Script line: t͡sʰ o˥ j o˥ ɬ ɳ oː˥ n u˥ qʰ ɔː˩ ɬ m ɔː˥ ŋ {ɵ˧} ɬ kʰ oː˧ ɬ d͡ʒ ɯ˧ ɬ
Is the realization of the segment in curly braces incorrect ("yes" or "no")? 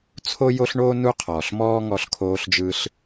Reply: yes